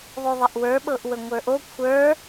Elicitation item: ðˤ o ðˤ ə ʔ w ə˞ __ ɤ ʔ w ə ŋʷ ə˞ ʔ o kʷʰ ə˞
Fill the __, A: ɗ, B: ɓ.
B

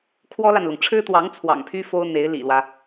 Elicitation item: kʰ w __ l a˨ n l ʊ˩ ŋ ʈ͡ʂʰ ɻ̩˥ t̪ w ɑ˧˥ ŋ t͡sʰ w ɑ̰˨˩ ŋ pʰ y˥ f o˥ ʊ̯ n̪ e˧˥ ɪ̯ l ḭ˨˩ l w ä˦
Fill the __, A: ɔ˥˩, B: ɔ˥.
B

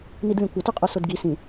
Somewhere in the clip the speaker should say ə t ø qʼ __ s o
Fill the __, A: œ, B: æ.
A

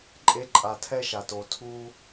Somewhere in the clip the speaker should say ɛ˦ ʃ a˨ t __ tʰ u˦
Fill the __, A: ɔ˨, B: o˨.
B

